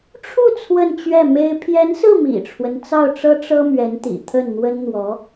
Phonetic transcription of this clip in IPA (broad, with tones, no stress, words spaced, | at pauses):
ʈ͡ʂʰu˥˧ t͡sʰwə˥˧nt͡ɕɥɛ˥˩me˥ɪ̯ pʰjɛ˧˥nsɹ̩˥˩ mḭ˨˩ʈ͡ʂʰwə˦nt͡sɑ˥˩ʊ̯ʈ͡ʂɤ˥ ʈ͡ʂɤ˥mɥɛ˧˥nt̪ḭ˨˩ t̪ʰə˥˩nn̪wə˥nn̪wɔ˧˥